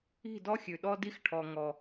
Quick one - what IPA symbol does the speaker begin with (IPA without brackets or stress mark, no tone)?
i̤